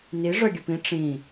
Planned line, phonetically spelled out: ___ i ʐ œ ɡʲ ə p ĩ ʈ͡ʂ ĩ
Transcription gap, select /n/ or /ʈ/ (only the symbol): n